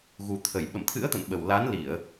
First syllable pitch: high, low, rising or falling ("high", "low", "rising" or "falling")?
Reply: low